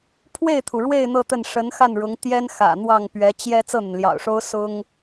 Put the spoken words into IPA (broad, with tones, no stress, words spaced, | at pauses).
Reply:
pʰwe˥˩ɪ̯t̪ʰu˩ɻwe˥˧ɪ̯ n̪ɤ˥˧t̪ə˥˩n ʂə˧˥nxa˥˩nɻʊ˧˥ŋ t̪jɛ˥n xä̰˨˩n̪wɑ˥˩ŋpɥɛ˧˥ t͡ɕjɛ˥ t͡sɤ˥˩n̪ə˩nljɑ̰˨˩ʊ̯ʂo˥ʊ̯ sʊ˥ŋ